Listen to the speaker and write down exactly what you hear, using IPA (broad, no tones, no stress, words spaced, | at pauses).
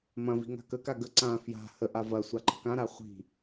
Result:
mɐ̃ vi̤ŋa̤kəka ɡə ǀã fja̤ həʔa vɐ sʷaǃə̤kãɾa χʷi̤